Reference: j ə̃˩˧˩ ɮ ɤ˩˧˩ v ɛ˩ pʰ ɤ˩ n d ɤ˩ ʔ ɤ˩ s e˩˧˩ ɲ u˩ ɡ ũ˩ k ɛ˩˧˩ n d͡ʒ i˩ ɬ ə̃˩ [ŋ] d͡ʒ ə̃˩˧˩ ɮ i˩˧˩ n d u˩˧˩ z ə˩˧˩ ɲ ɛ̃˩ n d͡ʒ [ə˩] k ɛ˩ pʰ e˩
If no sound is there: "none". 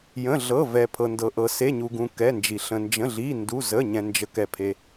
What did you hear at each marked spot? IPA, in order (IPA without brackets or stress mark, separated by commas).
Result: n, ə˩